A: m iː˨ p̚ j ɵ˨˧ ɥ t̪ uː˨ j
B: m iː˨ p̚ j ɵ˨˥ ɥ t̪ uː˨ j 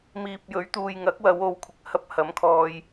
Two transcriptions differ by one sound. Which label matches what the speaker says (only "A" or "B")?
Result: B